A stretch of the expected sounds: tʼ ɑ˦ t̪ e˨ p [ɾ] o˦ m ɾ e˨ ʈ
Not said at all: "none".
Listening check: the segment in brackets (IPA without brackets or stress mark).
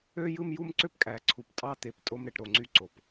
tʼ